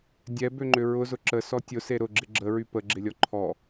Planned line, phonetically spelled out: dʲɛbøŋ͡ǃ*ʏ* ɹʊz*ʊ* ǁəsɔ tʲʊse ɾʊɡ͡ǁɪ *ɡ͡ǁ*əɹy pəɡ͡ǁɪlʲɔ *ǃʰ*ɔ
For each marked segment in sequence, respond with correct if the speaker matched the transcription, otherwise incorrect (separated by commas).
correct, correct, correct, correct